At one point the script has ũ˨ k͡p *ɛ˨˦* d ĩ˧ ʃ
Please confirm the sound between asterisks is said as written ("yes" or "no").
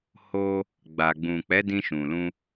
yes